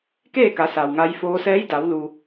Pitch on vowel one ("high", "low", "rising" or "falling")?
falling